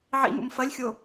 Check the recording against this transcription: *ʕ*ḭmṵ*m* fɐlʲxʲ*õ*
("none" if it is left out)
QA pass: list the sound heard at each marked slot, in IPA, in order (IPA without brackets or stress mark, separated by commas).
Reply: ʕ, m, o